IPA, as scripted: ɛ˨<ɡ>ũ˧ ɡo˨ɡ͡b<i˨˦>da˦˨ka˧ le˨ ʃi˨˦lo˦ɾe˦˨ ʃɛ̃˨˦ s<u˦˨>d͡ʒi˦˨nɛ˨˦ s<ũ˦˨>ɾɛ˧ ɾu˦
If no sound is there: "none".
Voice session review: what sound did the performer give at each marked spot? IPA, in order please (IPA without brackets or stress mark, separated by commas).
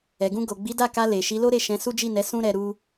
ɡ, i˨˦, u˦, ũ˦